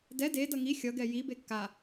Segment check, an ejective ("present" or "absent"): absent